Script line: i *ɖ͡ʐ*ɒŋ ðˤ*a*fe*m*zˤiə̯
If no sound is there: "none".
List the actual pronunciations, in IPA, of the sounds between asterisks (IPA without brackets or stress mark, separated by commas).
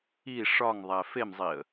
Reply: ʂ, æ, m